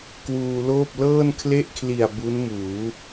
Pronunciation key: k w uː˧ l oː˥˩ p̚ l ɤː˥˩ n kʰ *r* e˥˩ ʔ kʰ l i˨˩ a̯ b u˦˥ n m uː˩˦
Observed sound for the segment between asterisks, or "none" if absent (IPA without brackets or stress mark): l